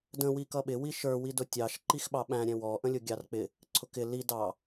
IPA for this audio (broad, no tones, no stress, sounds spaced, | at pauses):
d ə̃ w i k ʌ ɓ ɪ w i ʃ ə˞ w i d ʊ tʲ ɑ ʃ ǃ i x ɓ ɑ ɓ æ̃ ɾʲ ɛ̃ w ɔ ʔ ə̃ lʲ ʊ ɡʲ ɑ r k͡p ɪ | ǀʰ ʊ k ɪ l i d ɑ